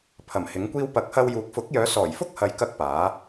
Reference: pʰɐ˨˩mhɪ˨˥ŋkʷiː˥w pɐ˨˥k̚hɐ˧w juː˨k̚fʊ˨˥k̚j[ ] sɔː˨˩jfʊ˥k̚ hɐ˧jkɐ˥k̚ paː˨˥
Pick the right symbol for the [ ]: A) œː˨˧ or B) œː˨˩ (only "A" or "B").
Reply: A